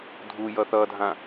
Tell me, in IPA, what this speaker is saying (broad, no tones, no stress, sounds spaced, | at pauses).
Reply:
dʱ u j ʌ θ ʌ dʱ ã